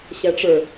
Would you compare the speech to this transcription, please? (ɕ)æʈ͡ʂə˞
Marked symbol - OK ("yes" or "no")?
yes